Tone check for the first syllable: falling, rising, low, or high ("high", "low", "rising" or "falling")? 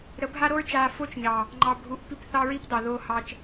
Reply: rising